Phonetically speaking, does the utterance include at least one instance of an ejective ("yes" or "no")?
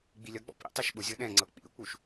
no